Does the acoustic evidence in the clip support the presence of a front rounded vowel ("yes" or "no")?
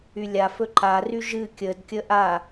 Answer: yes